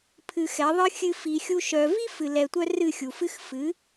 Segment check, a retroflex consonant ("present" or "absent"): absent